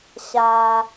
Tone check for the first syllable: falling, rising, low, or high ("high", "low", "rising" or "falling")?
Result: low